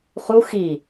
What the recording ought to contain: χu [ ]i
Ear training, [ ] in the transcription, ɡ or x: x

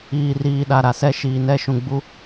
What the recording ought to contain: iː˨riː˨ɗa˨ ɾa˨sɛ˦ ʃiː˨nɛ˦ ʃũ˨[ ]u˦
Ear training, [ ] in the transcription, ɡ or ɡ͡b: ɡ͡b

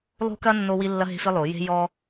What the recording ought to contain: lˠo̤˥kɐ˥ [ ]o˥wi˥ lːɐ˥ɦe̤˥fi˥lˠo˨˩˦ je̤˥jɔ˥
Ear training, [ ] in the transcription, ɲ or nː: nː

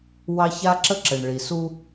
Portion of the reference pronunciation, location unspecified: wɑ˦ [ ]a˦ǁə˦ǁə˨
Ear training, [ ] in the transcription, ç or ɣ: ç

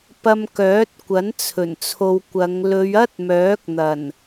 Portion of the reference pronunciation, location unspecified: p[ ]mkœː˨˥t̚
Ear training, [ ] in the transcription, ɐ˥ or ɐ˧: ɐ˧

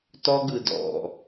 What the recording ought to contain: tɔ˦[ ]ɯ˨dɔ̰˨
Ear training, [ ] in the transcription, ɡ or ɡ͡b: ɡ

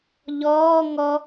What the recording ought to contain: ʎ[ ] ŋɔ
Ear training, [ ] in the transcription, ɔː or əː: ɔː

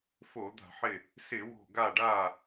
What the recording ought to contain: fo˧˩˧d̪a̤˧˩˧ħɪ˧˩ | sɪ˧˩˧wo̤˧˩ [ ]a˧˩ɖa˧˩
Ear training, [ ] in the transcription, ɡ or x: ɡ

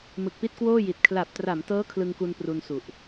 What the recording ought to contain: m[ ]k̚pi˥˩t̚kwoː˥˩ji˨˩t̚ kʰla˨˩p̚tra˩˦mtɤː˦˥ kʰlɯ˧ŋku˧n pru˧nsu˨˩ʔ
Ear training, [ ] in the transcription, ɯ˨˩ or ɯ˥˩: ɯ˨˩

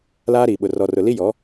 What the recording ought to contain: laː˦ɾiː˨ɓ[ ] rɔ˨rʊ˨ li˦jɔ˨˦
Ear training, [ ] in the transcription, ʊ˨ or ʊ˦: ʊ˨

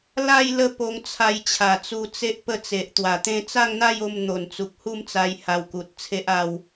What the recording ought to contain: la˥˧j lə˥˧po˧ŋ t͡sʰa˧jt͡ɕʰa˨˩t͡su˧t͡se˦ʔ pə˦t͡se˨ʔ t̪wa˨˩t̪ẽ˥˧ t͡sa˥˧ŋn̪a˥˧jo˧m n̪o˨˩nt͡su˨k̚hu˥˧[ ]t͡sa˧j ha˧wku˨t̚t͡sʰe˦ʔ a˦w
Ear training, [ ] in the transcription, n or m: m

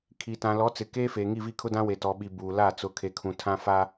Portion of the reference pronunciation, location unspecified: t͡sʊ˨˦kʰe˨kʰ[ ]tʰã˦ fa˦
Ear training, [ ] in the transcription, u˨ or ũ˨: ũ˨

